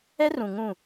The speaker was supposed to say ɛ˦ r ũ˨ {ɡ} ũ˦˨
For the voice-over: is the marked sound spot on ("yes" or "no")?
no